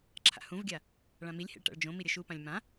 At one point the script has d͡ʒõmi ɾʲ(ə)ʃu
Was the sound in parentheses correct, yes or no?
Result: yes